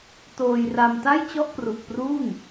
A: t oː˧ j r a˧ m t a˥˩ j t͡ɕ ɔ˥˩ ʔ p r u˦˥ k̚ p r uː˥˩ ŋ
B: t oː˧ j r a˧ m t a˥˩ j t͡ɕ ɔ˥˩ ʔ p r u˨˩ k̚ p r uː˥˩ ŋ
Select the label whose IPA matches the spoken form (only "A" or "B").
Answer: B